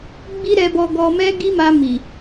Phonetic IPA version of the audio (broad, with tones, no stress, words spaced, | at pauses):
ɡ͡bi˦ɾɛ˧bɔ˧ ɡɔ˧mɛ˦ɡi˦ma˧ mi˨